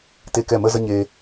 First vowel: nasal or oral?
oral